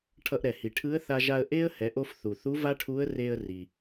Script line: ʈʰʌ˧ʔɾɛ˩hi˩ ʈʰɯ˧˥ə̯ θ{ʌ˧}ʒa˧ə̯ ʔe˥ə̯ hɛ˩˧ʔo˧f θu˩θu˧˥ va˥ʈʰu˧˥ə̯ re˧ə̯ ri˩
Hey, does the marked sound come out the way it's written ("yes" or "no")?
no